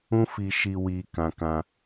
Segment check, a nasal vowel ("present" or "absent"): present